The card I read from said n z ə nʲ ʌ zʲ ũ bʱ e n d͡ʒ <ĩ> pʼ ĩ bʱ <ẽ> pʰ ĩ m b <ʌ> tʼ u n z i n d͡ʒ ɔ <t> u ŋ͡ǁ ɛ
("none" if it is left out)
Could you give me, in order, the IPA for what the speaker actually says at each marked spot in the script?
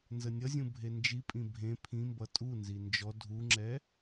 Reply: i, ẽ, ʌ, dʱ

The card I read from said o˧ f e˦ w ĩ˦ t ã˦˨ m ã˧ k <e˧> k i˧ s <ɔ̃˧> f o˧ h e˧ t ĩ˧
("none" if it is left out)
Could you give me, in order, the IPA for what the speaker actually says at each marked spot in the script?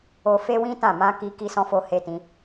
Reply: i˧, ɔ̃˧

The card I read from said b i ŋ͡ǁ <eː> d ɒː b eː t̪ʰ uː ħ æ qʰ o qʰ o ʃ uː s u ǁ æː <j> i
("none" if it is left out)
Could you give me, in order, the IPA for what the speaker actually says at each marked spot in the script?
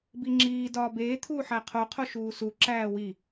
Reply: iː, w

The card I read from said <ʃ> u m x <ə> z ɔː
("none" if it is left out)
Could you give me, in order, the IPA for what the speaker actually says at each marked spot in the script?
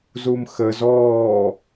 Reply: z, ə

